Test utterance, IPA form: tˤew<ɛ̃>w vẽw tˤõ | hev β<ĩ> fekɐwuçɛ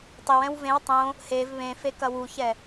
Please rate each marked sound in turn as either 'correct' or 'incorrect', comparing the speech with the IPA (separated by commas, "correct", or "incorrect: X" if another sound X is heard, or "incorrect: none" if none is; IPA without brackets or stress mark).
correct, incorrect: ẽ